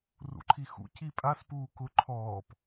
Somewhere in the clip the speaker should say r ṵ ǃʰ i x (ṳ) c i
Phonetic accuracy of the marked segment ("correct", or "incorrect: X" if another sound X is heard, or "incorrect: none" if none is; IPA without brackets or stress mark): incorrect: ṵ